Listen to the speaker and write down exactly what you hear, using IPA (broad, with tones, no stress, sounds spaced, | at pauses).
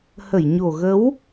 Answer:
h ə˧˩ j ɲ o˨˩ ɣ ə˨˦ w